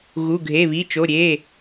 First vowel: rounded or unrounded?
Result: rounded